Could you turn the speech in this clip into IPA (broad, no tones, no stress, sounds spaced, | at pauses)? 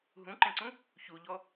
ɦ ũ ǃ ẽ ǀ ũ | ç u ʎ ɔ